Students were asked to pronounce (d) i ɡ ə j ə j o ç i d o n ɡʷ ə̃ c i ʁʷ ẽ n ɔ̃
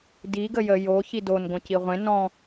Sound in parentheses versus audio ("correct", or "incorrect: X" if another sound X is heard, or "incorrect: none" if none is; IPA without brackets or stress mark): correct